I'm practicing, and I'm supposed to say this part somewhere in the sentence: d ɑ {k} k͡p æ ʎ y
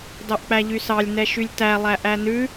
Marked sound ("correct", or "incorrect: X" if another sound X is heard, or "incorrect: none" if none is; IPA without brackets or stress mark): incorrect: ʔ